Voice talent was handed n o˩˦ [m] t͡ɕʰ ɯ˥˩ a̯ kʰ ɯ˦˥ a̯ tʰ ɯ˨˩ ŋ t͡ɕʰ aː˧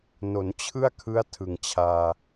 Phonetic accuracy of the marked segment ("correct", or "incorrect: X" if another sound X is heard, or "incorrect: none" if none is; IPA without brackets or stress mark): incorrect: n